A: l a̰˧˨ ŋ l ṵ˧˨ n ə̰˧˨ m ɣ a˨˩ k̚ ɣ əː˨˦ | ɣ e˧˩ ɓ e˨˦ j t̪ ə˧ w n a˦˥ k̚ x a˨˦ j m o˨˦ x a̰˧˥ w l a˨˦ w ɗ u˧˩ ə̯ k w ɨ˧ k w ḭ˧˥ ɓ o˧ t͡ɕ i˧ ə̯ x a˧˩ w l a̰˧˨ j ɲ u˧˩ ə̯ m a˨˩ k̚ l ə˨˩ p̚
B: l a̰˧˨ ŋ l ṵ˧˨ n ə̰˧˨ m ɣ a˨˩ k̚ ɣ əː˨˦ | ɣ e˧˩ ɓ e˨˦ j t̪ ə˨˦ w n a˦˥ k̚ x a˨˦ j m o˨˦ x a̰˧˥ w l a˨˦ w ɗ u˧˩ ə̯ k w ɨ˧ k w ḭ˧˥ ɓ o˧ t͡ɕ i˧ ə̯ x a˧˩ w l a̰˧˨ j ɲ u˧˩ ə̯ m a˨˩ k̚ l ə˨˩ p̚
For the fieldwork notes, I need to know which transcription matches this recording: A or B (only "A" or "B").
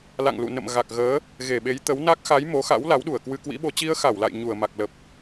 B